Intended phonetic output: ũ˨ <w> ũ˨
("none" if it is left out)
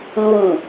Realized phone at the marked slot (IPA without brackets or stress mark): w